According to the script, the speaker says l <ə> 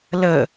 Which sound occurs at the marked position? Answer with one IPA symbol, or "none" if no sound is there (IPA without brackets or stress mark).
ə